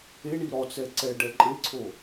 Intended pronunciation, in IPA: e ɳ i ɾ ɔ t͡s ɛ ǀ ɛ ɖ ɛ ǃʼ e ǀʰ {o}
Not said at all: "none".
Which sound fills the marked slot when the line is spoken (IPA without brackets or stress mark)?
o